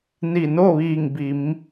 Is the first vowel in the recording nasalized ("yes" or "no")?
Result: no